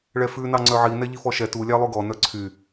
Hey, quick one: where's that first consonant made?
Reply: retroflex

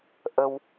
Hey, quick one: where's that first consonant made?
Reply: throat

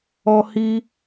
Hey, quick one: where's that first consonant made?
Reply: throat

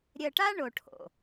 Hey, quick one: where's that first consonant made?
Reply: tongue tip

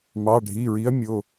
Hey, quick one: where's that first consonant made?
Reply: lips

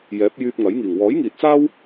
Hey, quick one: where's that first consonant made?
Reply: palate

